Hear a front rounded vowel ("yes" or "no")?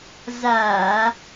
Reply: no